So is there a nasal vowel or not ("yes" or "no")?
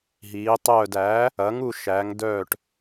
no